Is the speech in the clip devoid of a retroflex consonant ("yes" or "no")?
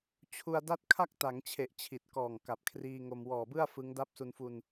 yes